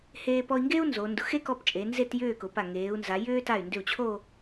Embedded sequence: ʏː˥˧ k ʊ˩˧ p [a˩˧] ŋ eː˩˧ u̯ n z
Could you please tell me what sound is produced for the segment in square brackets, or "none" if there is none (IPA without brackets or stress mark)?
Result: a˧˩